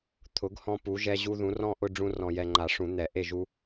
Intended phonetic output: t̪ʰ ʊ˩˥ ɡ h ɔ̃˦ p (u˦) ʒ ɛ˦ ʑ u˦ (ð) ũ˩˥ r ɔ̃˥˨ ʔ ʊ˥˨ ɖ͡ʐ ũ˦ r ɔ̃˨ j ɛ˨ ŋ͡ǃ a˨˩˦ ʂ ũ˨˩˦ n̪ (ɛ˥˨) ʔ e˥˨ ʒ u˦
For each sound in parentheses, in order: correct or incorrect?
incorrect, correct, incorrect

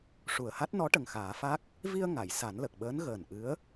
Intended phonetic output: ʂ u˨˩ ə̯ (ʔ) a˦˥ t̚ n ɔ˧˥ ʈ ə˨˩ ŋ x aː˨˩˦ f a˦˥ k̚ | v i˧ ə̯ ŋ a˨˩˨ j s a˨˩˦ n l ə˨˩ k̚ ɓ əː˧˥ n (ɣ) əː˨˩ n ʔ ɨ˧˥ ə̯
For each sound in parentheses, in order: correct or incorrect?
incorrect, correct

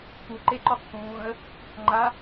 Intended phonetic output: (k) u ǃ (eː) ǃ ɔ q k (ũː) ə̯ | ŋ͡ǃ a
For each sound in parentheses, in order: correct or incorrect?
correct, incorrect, correct

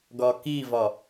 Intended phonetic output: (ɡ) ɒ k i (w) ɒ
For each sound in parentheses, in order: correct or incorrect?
correct, incorrect

